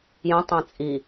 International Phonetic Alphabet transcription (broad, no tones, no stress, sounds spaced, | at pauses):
j ə̃ tˤ ɛ̃ t͡sʼ i